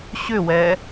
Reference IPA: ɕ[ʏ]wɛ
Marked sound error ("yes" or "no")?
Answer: no